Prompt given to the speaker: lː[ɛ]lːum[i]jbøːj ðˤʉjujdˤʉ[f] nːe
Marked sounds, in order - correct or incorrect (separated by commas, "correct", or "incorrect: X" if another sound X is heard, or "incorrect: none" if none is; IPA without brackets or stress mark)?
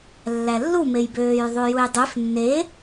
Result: incorrect: æ, incorrect: e, correct